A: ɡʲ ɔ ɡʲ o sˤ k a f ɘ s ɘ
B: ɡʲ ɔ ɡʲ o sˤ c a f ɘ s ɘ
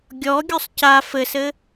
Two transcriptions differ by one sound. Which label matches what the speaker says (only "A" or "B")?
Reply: B